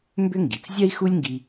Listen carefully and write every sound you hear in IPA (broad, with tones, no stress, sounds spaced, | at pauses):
m b ʏ˥ ŋ ɡ i˩ t͡s zʲ ɜ˥ i̯ x u˥ lʲ ŋ ɡ i˧